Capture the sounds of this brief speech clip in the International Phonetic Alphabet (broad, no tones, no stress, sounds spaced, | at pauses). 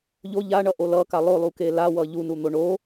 ʎ o ʎ a ɳ ʌ ʔ o l ʌ k a lˠ o lˠ u k e l a w ʌ ʎ u n u n̪ o ɳ o